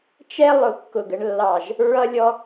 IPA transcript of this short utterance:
t͡ʃ ɛ˦ lˠ ʊ˦˨ kː ʊ˦˨ ɡ ə˦ ɳ lː ɑ˦˨ ʒ | ɹ ʌ˦ lʲ ɔ˦

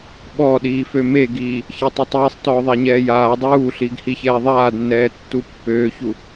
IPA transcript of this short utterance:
ɓ ɔ ɗ iː f ø m e ɡ iː | ç e tˤ u tˤ iː sˤ t ɔː ðˤ a ɲ ɛː j aː dˤ uː ɬ iː ɡ h i ç ɛː ðˤ aː d nː ɛː tː u pː øː ç u

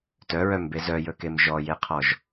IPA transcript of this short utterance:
t œ ɹ œ m b e z œ j ɵ k e m ʒ ɔ j e qʰ ɔ ʒ

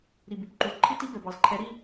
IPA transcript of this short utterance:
ɾ i˨ b y˨ p ǃ u˨ z ǃʰ i˦ t i˦ b ɛ˨ b ɑ˨ z ǃʰ ɛ˨˦ ɾ i˦˨

